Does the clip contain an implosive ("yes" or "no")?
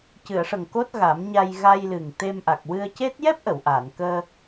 no